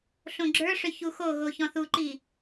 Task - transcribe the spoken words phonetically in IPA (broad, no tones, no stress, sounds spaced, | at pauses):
ɬ õ ɡ͡ǁ ə˞ ʂ ʏ ç u x o ɣ o ç ɔ̃ θ u ǃ i